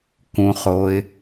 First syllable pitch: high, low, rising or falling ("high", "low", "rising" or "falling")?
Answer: low